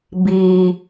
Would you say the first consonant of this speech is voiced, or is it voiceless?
voiced